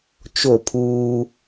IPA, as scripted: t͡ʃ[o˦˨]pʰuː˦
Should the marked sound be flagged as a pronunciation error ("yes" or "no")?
no